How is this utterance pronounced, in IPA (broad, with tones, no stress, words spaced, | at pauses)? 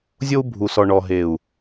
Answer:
zʲo˦u̯bʱu˨sɔ˨ ɳɔ˨ɦe˨u̯